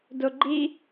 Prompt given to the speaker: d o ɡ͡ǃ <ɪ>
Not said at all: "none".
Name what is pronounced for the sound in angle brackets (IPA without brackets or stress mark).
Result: i